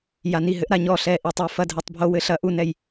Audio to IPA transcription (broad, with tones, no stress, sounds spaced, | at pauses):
j a˧ n i˥˩ ɦ ɘ˦˥ ʔ ɾ a˧ ɲ ɔ˥˩ ɬ ɛ˥˩ ʔ i˥˩ tˤ e˧ f ɐ˧ dʱ ɘ˦˥ tˤ bʱ o˦˥ w ɘ˦˥ ɬ ɐ˦˥ ʔ u˥˩ n ɛ˥˩ j